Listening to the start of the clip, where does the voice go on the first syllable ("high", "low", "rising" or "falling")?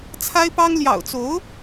high